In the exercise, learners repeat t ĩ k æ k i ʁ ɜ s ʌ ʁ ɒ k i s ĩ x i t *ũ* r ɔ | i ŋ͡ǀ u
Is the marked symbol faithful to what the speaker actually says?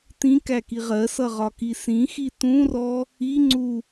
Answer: yes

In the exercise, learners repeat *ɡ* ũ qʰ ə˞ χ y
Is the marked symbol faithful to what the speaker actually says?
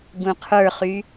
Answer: yes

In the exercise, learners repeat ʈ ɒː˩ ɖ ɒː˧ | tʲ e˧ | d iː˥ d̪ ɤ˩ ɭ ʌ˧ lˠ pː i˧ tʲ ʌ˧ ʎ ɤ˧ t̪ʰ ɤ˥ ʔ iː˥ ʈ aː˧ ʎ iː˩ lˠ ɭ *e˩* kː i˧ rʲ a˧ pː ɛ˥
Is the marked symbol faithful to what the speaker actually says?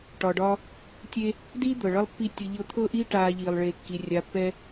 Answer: no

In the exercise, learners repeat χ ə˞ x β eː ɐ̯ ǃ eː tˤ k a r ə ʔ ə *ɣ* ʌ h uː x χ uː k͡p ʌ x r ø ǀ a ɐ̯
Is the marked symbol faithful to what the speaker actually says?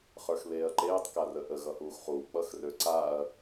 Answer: yes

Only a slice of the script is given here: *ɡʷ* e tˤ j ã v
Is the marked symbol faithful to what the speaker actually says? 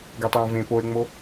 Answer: no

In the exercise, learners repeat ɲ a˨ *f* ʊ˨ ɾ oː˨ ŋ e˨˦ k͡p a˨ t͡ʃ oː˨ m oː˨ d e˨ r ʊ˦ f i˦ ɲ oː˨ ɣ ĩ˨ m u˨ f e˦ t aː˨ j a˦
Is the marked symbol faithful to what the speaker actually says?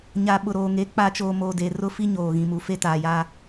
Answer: no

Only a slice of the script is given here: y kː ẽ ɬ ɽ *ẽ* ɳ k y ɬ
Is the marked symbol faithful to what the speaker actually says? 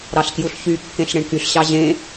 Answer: yes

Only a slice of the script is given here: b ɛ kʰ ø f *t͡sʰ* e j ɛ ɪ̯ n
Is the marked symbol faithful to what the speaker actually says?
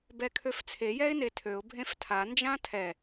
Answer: yes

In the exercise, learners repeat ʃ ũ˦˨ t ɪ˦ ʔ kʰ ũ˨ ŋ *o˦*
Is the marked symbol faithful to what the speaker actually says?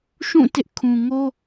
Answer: yes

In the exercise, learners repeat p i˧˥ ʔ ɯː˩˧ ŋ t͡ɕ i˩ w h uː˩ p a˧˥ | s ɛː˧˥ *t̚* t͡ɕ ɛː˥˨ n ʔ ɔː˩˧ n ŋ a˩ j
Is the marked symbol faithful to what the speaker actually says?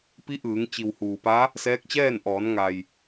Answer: no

